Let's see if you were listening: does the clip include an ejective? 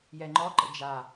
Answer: no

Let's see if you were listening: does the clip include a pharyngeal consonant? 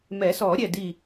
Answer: no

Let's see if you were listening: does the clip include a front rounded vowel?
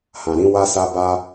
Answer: no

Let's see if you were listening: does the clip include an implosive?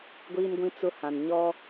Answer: no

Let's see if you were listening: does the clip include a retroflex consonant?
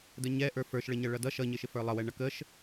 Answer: yes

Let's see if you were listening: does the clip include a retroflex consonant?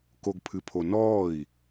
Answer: no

